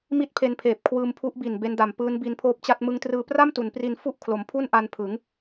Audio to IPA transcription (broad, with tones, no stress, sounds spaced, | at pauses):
m i˥˩ t̚ pʰ e˧ n pʰ eː˨˩ p̚ kʰ w ɯː˧ m pʰ u˦˥ ʔ b i˨˩ n b e˦˥ n d a˨˩ m p ɯː˦˥ n b i˧ n pʰ oː˥˩ p̚ t͡ɕ a˥˩ t̚ m ɯ˧ ŋ t r ɯː˧ p r a˥˩ m t u˩˦ n p r i˧ n f u˥˩ ʔ kʰ l o˩˦ m pʰ u˥˩ n ʔ a˧ n pʰ ɯ˩˦ ŋ